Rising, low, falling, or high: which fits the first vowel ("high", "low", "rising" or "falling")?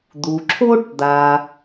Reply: low